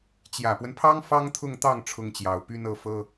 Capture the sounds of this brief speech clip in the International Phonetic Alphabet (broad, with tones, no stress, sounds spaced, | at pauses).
t͡ɕ j ä˨˩ p w ə˦ n pʰ ɑ˥ ŋ f ɑ˥ ŋ t̪ʰ ʊ˥˧ ŋ t̪ ɑ˥˩ ŋ ʈ͡ʂʰ ʊ˥ ŋ t͡ɕ j ɑ˨˩ ʊ̯ p y˥ n ɤ˥˩ f ɤ˥